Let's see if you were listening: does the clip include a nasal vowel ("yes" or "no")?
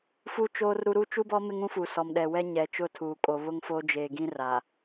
yes